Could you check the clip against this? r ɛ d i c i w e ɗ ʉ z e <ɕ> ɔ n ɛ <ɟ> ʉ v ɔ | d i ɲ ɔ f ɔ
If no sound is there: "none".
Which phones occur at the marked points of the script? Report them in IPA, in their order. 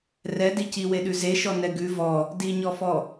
ʃ, ɡ

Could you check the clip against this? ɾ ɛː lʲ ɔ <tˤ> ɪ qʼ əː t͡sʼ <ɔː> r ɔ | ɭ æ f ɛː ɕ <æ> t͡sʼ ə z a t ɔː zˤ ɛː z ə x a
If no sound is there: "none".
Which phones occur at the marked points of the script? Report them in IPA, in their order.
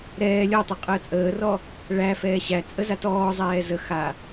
tˤ, əː, æ

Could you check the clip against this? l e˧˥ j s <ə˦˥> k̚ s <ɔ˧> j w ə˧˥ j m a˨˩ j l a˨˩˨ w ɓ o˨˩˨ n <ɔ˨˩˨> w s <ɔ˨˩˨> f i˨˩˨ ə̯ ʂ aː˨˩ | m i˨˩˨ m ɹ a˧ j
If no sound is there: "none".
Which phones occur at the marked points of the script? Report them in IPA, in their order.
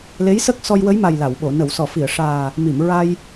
ə˦˥, ɔ˧, ə˨˩˨, ɔ˨˩˨

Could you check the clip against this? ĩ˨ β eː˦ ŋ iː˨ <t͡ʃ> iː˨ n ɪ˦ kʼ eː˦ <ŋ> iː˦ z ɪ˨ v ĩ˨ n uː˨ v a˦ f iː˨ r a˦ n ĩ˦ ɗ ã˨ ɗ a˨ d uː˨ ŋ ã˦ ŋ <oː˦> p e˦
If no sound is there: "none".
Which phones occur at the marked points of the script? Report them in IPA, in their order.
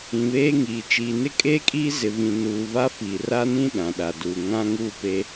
t͡ʃ, kʼ, uː˦

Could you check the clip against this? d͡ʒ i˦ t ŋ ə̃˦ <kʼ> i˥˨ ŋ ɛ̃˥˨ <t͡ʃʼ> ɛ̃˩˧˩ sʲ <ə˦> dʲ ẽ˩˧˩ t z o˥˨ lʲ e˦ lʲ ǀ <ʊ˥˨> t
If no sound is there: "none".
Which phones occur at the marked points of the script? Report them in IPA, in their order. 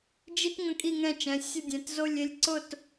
kʼ, t͡ʃ, ə˥˨, ʊ˥˨

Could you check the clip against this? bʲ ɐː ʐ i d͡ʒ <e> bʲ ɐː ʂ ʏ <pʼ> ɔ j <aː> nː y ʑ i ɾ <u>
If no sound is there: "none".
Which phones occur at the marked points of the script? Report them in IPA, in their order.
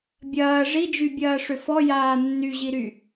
y, f, aː, y

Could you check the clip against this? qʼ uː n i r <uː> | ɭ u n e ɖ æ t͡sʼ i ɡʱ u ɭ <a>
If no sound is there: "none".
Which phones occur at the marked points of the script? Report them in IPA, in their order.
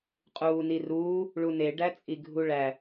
uː, æ

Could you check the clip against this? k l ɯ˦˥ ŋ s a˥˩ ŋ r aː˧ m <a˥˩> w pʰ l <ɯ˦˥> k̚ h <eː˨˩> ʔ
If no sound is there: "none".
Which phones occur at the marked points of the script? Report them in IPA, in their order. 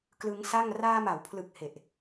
a˩˦, ɯ˨˩, e˨˩

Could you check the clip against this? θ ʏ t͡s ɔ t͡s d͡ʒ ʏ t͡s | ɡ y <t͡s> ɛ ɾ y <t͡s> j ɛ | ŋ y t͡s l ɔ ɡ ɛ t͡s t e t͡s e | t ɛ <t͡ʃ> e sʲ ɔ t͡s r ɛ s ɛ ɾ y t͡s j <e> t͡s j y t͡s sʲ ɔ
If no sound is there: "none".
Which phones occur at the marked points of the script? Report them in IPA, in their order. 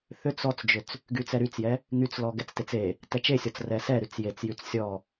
t͡s, t͡s, t͡ʃ, e

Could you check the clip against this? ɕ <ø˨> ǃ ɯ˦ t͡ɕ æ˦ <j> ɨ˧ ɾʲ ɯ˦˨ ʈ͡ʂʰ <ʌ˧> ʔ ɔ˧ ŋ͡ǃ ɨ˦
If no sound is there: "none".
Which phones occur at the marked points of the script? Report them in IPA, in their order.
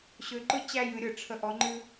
ø˧, j, ə˧

